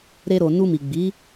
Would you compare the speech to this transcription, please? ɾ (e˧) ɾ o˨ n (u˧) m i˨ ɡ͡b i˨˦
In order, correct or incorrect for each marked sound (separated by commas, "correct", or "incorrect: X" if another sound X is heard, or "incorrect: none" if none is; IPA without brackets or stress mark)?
correct, correct